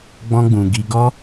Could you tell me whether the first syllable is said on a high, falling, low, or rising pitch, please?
high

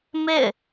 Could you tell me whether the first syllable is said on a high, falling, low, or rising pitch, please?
falling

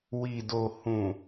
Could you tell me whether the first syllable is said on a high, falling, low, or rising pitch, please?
low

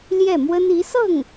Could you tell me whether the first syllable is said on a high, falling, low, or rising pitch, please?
falling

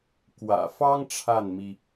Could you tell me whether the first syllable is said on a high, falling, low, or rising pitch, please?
low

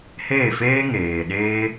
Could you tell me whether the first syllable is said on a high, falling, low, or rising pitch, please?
falling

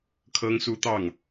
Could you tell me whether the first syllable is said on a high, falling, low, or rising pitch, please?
high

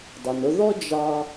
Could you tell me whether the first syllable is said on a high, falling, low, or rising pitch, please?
low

